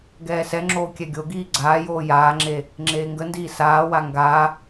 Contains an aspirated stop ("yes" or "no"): no